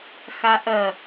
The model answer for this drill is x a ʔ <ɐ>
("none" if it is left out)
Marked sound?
ɐ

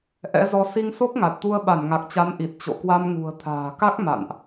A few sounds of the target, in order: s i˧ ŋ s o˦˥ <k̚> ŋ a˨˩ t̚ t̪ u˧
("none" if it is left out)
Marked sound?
k̚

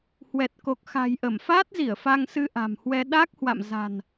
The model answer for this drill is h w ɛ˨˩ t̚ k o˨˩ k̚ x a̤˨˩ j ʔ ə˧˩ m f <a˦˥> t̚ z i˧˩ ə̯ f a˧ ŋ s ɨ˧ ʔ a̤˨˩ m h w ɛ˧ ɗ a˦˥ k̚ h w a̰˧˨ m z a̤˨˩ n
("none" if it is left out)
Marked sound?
aː˦˥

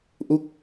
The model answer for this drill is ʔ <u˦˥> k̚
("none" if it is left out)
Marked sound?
u˦˥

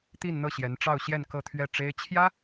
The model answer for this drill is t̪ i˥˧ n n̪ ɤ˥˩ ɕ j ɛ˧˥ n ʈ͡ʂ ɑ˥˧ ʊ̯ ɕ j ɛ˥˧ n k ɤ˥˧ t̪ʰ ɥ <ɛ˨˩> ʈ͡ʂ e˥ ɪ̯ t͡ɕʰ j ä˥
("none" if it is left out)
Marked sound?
ɛ˥˩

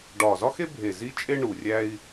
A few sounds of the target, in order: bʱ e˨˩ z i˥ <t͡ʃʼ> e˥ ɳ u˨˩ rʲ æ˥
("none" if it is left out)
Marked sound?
t͡ʃʼ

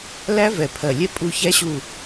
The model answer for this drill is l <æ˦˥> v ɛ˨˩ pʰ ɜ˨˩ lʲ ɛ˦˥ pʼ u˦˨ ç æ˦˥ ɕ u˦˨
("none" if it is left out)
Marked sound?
æ˦˥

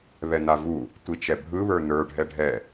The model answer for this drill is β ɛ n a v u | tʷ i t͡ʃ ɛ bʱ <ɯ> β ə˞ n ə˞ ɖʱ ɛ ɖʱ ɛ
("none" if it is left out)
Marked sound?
ɯ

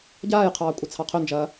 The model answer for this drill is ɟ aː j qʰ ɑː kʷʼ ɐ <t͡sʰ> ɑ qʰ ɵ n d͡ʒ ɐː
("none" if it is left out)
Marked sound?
t͡sʰ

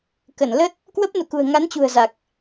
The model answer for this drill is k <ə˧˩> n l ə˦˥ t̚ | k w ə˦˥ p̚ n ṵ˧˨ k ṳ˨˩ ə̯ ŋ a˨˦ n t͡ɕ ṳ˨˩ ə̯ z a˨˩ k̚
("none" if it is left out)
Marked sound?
ə˧˩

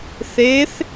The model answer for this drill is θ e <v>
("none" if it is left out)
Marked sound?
θ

